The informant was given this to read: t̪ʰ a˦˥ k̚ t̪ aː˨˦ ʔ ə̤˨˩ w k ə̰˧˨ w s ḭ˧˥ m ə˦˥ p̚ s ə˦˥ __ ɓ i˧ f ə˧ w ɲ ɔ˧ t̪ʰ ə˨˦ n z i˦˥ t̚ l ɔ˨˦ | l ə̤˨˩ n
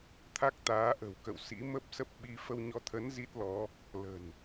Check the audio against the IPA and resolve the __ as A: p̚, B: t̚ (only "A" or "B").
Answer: A